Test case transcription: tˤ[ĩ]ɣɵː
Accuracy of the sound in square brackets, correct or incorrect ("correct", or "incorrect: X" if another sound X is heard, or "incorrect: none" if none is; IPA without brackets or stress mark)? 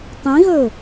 correct